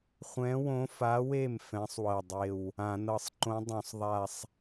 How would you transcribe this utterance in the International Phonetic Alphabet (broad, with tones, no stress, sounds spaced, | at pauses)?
χʷ ɛ̃˧˥ w õ˧˥ f a˧˥ w e˥˩ m f ɛ̃˧˥ sˤ w ɤ˧˩ dˤ e˧˩ w | ã˧˩˧ n ɤ˧˩ sˤ ǃ õ˧˥ dˤ õ˧˩˧ sˤ ðˤ a˧˩ sˤ